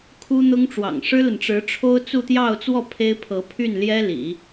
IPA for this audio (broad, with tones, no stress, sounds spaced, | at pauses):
kʰ u˥ n̪ ʊ˥ ŋ ʈ͡ʂ w ɑ̰˨˩ ŋ ʂ ɻ̩˥ l ə˨ n ʈ͡ʂ ɻ̩˧˥ ʈ͡ʂʰ o˥ ʊ̯ t͡s u˥˧ t̪ j ɑ˥˧ ʊ̯ t͡s w ɔ˥˩ pʰ e˥ ɪ̯ pʰ ɤ˧˥ pʰ y˥˩ n l j ɛ˥ l ḭ˨˩˦